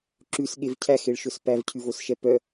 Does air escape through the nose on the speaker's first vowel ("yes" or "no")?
no